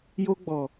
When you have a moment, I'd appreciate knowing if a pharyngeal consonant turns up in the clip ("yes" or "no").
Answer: no